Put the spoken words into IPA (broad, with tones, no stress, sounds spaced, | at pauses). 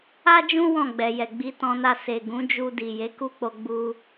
a˦ d͡ʒ ũ˦ w ɔ̃˦˨ ɡ͡b ɛ˨ j ɛ˨ ɡ͡b i˧ t ɔ̃˧ n a˧ s e˨ ɡ ũ˨˦ d͡ʒ u˧ d i˨ j e˨˦ k u˦ k͡p o˧ ɡ͡b u˧